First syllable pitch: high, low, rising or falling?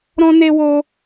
high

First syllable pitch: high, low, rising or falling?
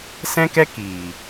high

